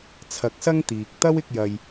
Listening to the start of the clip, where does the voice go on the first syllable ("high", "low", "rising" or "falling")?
rising